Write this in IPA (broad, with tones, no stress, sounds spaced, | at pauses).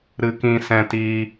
ɾ ɨ˧ k ĩ˧ s ɛ̃˧ t iː˧